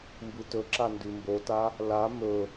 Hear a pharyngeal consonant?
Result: no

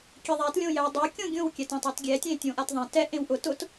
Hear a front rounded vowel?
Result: no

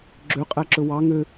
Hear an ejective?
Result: yes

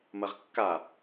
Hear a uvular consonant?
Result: yes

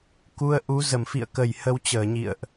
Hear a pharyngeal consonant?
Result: no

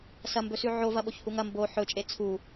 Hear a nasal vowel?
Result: no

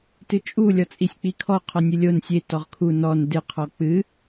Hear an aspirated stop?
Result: yes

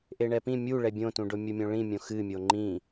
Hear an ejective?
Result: no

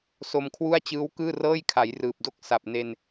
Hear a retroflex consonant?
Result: no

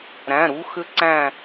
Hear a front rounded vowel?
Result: yes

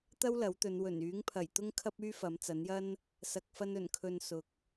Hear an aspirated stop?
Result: yes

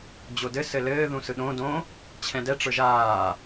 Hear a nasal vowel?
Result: yes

